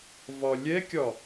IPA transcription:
v ɒ lʲ ɛ kʲ ɒ

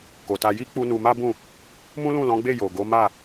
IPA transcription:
k o˨ t a˧ j i˦ k͡p u˦ n u˧ m a˦ b ũ˦˨ | m ũ˦ l ũ˦˨ l ɔ̃˨˦ ɡ͡b e˦˨ j o˨ ɡ o˨˦ m a˦˨

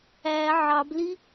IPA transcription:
æ ʕ ɑ b l i

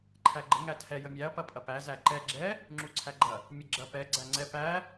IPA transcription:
ǃʰ æ ɡ͡ǃ ə ŋ æ tʰ ɛ j ə mʲ æ ɐ̯ p ɐ pʼ ɐ p æ z æ ǃ ɛ ɡ͡ǁ ɛ | ŋ͡ǁ u ǀʰ æ ɡ͡ǃ ɐ | mʲ ə ɡ͡ǁ ɐ p ɛ ɡ͡ǀ æ ŋ͡ǀ ɛ p æ

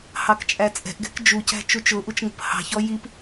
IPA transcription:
h ɑ k t͡ʃʼ æ t͡sʼ ɛ̤ ʔ ɡ ɛ̤ k d͡ʒ u c æ̤ t͡ʃ u t͡ʃ ʊ ʔ u t͡ʃ ŋ ə̤ p h ɑ̤ ç ɔ j i p

